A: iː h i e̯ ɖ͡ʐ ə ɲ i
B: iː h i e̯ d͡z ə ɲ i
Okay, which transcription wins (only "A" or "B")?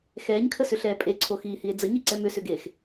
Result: B